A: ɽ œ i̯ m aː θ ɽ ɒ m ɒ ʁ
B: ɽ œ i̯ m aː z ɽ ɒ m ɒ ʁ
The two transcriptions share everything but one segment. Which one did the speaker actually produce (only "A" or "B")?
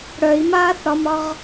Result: A